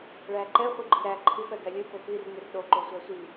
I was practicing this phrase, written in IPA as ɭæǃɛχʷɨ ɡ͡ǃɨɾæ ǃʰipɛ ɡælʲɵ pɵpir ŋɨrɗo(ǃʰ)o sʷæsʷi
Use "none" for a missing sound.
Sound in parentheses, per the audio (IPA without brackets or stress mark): ǃ